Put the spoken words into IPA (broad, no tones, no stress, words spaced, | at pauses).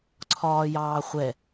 ǀʰɒːjɑːχʷɛ